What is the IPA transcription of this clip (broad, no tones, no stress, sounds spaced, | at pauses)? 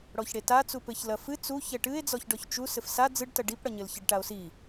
ɽ ɔ ç ɽ e t a t͡s u p ɘ ç l ɐ f ɨ t͡s u ç ɛ ʈ ɨ e̯ d͡z ɔ ç ɖ ɔ ç t͡ʃ u s ɘ f s a d͡z ɨ ɖ t ɐ ɖ i p ɽ ɐ ɲ ɘ l ç ɐ ɖ ʈ a o̯ s i